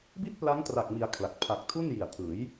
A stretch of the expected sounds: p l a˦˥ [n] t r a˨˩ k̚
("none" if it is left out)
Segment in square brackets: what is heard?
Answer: ŋ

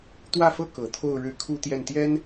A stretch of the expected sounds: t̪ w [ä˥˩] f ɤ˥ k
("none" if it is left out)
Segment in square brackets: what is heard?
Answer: ä˥˩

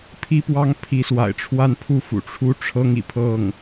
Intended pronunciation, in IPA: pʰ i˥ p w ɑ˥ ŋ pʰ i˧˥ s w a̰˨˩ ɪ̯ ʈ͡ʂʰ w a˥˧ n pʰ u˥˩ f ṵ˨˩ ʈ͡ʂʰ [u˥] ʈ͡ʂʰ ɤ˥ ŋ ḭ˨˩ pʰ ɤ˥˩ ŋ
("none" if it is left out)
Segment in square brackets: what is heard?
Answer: u˥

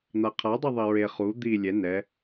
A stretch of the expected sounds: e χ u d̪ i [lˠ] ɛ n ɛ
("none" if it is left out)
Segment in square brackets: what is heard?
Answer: lʲ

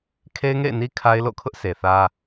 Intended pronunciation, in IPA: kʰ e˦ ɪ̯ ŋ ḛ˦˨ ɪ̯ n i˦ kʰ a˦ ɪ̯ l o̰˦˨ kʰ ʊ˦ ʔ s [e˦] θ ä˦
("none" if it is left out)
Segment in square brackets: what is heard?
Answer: e˨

